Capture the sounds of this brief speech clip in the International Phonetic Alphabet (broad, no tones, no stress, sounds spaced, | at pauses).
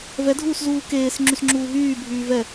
v ɛ dʱ uː s z uː k eː s ŋ͡ǁ y s ŋ͡ǁ uː ɦ yː bʱ yː v ɛ